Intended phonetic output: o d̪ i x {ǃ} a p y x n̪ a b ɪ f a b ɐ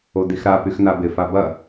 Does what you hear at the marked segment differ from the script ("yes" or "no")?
yes